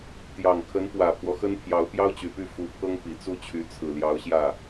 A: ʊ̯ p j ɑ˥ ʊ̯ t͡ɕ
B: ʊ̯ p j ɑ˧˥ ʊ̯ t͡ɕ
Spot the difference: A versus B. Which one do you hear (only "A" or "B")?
A